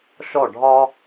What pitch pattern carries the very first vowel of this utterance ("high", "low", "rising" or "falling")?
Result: falling